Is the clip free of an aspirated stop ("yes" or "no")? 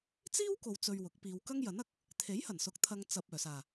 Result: no